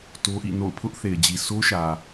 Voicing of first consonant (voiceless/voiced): voiceless